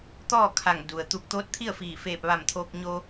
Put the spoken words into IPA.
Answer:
t̪ ɔː˥˨ kʰ a˧˩ ŋ d u˩ ə̯ t̪ u˧ k̚ t̪ oː˧˥ t̚ t̪ʰ i˥˨ ə̯ f iː˧˩ f eː˧˩ p̚ ʋ a˧˩ m t̪ʰ oː˧ k̚ ɲ o˧

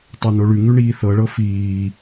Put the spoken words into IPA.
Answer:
tˤ a n o ɭ ʉ ŋ ʉ ɳ iː θ ɤ ɭ ɤ f iː

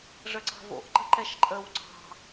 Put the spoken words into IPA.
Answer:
ʐ ə ǀ ɑ̤ v o̰ ʔ ǃ ə̤ ǃ ɛ ʃ ǃʼ ə w ǀ ɑ̤

